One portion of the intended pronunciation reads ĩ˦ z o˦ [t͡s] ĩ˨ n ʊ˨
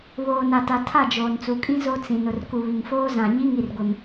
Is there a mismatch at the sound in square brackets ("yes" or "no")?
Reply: no